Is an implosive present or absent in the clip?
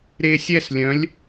absent